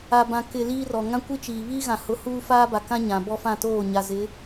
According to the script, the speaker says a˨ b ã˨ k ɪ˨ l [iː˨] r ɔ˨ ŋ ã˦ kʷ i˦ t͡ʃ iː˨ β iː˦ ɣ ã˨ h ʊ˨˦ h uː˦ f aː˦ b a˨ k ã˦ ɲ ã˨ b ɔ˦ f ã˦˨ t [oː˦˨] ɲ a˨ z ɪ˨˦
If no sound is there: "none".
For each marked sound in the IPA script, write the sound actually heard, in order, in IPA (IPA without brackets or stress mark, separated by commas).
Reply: iː˦, oː˦˨